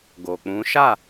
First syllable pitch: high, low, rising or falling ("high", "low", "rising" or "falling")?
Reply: low